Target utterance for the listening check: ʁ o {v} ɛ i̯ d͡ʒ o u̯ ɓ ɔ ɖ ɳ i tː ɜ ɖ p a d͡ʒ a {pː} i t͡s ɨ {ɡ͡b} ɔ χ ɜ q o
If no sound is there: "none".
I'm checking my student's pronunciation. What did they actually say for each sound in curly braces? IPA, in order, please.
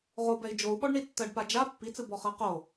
b, pː, b

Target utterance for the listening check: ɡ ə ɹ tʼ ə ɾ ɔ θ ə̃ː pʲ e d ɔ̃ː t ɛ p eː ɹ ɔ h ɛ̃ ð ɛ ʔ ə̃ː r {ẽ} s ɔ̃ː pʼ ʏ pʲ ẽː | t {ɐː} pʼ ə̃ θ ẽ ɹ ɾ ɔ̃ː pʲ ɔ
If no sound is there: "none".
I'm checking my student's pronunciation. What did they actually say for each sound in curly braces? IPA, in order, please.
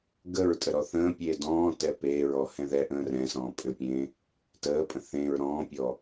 ɛ̃, əː

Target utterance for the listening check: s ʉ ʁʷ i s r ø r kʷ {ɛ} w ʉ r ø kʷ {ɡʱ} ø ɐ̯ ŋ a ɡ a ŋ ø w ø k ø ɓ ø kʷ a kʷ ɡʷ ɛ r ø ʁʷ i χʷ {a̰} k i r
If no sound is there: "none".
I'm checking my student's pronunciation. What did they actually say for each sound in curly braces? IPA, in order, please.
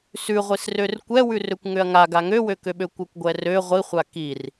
ɛ, ŋ, a

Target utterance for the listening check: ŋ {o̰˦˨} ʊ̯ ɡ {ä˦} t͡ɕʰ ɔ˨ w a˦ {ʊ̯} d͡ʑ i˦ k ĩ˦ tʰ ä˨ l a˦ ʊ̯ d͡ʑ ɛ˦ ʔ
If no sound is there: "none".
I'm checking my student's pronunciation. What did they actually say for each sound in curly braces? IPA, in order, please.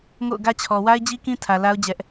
o̰˦˨, ä˦, ɪ̯

